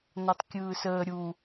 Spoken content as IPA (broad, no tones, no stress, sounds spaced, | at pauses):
n ɔ tˤ kʲ ɯː s əː ɾʲ u